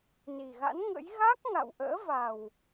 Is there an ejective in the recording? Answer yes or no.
no